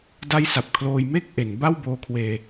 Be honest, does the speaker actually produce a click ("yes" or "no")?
no